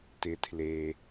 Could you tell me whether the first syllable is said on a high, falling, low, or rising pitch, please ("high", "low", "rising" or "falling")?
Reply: low